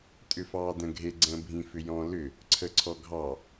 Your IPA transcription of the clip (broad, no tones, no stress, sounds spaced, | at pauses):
tʼ ʏ f ɑː d ə̃ ɡʱ e ɡ͡ǀ ə̃ː bʱ ĩ f ʏ j ɔ̃ l ʏ | ǀʰ ə ǀʰ ɔ ɡʱ ɑ